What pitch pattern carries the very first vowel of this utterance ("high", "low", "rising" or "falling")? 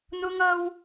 high